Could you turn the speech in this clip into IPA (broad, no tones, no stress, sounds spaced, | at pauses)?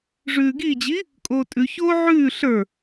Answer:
ʐ ʉː ɡ i d͡ʑ i | kʼ oː tʼ ʉ ç oː ʕ ʉː ɬ ə˞